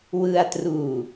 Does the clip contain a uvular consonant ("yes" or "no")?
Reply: no